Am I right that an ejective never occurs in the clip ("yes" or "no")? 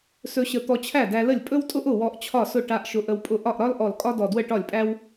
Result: no